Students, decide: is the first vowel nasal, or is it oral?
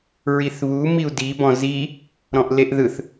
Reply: oral